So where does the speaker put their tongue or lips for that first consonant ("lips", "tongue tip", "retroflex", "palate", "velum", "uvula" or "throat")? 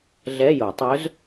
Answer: tongue tip